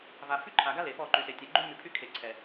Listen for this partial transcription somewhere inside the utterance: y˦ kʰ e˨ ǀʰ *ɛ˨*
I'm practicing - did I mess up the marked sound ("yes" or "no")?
no